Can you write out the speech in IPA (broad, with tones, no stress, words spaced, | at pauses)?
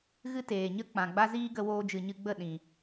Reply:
ɣɨ˦ teː˨ɲə˦ k͡pã˨ɡ͡ba˦ziː˦ ɡə˧woː˧d͡ʒɨ˨ ɲɨ˧ɡ͡bə˦˨ ɗĩ˨